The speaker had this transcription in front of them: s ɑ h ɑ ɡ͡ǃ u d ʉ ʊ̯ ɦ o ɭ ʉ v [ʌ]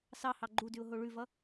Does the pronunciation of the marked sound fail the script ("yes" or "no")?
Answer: no